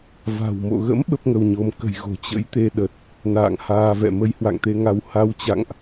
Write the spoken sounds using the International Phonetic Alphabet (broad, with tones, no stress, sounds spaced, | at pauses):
v a̤˨˩ w m o̰˧˨ ɣ ə̰˧˥ m ɓ ə˦˥ p̚ ŋ ə˧ w ɲ o˧ m k ə̤˨˩ j ɣ o̤˨˩ t͡ɕ ə̰˧˥ j t̪ e˧ ɗ ə˨˩ t̚ | n a̰ː˧˨ ŋ h aː˧ v ɛ̰˧˨ m ə˧ j h w a̰˧˨ ŋ t̪ e˧ ŋ a˧ w h a˨˦ w t͡ɕ a̰˧˨ ŋ ʔ